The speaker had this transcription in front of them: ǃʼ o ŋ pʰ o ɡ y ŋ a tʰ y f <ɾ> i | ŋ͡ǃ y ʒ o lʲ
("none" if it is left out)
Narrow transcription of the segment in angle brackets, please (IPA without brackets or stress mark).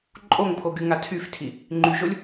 tʰ